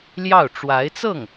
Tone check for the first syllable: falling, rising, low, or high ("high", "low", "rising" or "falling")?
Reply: falling